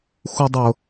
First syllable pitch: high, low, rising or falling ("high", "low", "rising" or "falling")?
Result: high